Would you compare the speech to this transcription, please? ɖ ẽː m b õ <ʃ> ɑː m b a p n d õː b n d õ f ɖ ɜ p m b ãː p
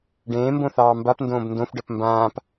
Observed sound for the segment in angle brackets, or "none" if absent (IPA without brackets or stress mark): θ